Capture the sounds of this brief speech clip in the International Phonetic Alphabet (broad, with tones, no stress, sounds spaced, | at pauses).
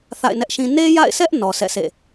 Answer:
θ a̰˦˨ ɪ̯ n ɛ˦ ʔ ʃ ĩ˦ n e˦ j a̰˦˨ ɪ̯ s ɛ˦ ʔ n ɔ˨ s ɛ̰˦˨ sʰ ḛ˦˨